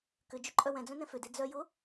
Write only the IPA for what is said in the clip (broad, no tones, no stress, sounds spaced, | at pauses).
k ʏ d͡ʒ ʏ ǃʼ œ w ɛ̃ d͡z œ̃ n ɛ̃ f ʏ d e d͡z œ j ʊ